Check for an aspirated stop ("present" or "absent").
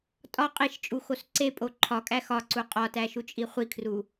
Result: present